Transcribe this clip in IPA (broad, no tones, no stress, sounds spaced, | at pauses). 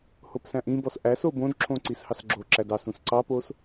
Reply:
h o p s æ̃ ʔ ĩ b ɔ s ʔ æ s o b õ d ǁʰ õ ǀ i s h ɑ s ɡ͡ǁ o ǁ æ d ɑ s ũ s ǀ ɑ p o s